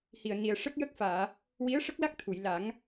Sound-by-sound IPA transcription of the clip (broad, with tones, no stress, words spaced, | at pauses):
hi˨˩ə̯ni˨˩ə̯ʂə˦˥k̚jə˦˥k̚ faː˨˩˨ | wi˧˥ə̯ʂə˦˥k̚la˦˥k̚ t̪ʰu˨˩˨jla˨˩˦ŋ